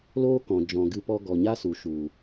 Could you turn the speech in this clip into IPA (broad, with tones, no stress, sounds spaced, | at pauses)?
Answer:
l oː˦ k ɔ̃˨ d͡ʒ ɔ̃˨ ɡ ɨ˧ p ɔ˧ ɡ ɔ˨ ɲ a˦ s u˨ ʃ u˨